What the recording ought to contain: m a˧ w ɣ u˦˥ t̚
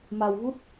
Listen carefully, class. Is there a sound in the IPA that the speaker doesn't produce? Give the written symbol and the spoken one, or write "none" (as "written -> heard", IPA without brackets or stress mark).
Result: none